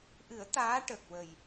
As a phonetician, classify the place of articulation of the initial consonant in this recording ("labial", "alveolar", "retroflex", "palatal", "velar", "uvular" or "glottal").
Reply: glottal